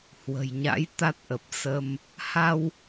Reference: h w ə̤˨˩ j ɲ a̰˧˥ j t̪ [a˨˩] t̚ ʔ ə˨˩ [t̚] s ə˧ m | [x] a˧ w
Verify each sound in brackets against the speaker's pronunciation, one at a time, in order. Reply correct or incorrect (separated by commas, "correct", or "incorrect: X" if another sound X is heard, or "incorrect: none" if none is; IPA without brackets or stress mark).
incorrect: a˦˥, incorrect: p̚, incorrect: h